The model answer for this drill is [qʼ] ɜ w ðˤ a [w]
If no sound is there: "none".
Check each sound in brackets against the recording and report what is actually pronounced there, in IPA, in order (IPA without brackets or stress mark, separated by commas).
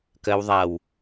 k, w